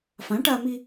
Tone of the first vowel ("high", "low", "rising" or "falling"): rising